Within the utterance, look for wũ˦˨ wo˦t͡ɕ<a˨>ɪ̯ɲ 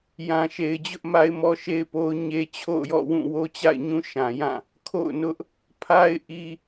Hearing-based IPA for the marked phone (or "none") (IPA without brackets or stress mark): a̰˦˨